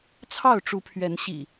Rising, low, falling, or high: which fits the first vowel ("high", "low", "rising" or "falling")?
falling